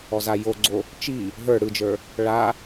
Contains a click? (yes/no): yes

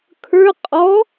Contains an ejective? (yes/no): yes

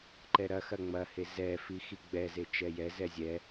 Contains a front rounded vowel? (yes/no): no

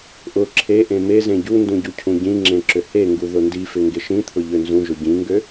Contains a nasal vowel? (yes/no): yes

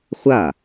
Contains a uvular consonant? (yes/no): yes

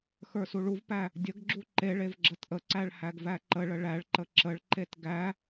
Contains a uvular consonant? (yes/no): no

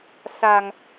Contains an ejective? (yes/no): no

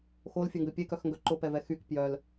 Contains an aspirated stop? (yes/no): no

